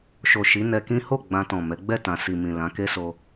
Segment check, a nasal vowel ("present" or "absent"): present